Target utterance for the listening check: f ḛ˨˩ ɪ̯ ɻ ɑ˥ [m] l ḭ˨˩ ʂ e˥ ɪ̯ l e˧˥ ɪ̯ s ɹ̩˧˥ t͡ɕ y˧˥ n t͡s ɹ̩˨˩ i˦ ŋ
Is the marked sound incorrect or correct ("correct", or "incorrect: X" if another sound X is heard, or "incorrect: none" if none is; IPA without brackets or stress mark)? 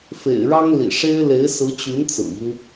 incorrect: ŋ